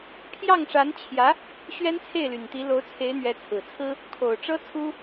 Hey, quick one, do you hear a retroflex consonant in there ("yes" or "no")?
yes